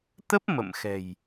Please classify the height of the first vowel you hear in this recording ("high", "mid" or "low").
mid